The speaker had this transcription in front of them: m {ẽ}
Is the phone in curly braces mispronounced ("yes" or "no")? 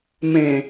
no